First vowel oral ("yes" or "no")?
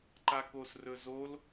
yes